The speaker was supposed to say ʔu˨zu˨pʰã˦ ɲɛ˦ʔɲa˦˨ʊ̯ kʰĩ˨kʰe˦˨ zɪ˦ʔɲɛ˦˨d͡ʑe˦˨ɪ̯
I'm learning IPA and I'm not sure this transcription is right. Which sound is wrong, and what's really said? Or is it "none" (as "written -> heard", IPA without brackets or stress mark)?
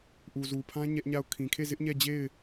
none